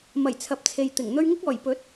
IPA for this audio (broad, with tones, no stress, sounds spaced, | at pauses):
m ɐ˨˩ j t͡sʰ ɐ˨ p̚ t͡sʰ e˨ j t̪ ɪ˨˩ ŋ n̪ ɵ˧ ɥ ŋ ɪ˥ k̚ ɔː˨˩ j p ɵ˨˥ t̚